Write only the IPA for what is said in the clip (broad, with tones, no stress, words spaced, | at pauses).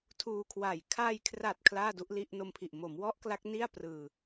tʰuː˧kʰwa˨˩j kʰaː˧jkʰra˨˩t̚ kʰlaː˥˩du˦˥ʔli˥˩ʔ no˧mpʰi˨˩ʔ mo˩˦mwɔ˦˥ʔ kla˦˥k̚ni˥˩a̯prɯː˧